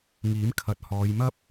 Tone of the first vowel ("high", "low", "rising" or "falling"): rising